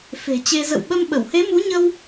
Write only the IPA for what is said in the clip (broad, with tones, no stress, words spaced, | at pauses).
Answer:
fe̤˨˩t͡ɕe˧ zə̰˧˨wɓə˧mɓə˧˩w he˨˦mu˨˦ɲə˧w